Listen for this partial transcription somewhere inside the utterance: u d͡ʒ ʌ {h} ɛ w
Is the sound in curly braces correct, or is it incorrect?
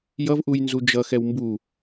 incorrect